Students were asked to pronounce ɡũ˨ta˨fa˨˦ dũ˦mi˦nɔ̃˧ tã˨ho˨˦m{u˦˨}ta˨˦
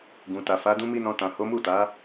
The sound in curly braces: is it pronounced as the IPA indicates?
yes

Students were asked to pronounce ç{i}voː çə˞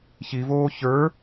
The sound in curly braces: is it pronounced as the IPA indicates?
yes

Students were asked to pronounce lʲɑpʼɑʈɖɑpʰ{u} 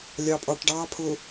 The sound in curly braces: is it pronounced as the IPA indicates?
no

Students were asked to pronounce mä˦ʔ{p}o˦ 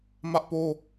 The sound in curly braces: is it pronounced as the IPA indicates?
yes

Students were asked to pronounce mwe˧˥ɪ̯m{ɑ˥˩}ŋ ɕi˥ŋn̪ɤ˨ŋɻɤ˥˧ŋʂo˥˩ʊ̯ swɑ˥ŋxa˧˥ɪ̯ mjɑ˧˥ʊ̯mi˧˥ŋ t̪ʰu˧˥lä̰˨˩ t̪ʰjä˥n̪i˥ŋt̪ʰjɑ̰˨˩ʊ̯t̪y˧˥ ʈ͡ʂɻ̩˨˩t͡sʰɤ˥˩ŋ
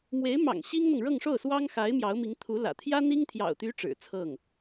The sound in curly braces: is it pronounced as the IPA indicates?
no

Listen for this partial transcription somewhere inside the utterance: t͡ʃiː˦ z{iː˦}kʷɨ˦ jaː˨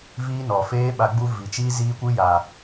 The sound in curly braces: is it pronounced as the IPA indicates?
yes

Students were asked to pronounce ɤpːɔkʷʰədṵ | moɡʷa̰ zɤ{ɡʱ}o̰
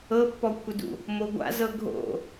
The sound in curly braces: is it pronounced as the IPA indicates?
yes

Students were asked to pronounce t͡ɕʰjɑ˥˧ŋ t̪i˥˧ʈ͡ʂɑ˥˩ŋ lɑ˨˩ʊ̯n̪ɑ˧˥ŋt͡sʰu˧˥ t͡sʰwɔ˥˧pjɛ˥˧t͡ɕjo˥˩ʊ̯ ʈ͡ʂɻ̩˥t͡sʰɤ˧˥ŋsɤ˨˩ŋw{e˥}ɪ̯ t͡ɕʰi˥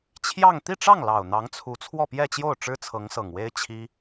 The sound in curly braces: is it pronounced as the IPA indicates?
yes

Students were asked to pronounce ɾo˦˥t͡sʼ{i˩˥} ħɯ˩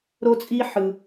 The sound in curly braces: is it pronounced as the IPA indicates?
no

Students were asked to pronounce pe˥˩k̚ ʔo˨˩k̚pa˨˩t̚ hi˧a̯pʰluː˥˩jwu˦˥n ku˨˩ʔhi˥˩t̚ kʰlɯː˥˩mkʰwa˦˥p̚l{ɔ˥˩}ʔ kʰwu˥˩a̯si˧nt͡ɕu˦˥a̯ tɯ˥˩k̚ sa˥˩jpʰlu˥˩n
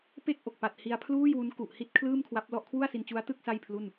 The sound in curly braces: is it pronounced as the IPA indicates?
yes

